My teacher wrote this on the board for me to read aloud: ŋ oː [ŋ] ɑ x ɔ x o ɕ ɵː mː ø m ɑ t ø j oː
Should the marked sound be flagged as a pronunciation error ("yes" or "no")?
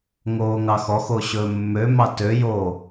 no